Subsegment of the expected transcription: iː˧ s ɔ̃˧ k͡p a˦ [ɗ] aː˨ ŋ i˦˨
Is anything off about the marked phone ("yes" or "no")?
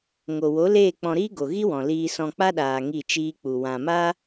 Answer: no